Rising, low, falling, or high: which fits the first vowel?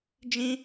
high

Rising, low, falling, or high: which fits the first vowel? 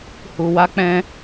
low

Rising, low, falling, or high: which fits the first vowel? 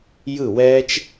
falling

